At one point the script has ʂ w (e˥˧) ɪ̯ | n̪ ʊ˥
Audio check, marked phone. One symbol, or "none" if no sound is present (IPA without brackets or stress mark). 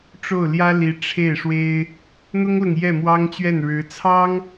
e˥